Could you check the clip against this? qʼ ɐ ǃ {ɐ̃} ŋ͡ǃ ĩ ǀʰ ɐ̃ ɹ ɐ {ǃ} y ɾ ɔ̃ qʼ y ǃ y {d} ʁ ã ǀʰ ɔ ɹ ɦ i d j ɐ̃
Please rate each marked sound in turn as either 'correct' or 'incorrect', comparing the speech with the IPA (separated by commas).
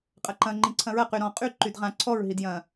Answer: correct, incorrect, correct